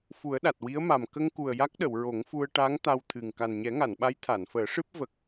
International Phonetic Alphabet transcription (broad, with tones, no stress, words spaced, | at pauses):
fu˨˩˦ə̯ɗa˨˩t̚ wi˧˥ə̯ma˨˩m kə˧ŋku˨˩ə̯ ja˦˥k̚ɗə˨˩˨w ɹo˨˩˦ŋfu˧ə̯ ʈa˧˥ŋ t̪a˧wt̪ʰɨ˨˩ŋ ka˨˩nɲɛ˨˩˦ŋa˨˩˨nɓa˧˥j t̪ʰa˨˩˨nfəː˨˩˦ʂɨ˦˥p̚ və˨˩k̚